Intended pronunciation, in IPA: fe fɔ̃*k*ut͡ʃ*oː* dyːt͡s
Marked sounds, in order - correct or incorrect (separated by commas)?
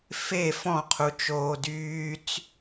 incorrect, correct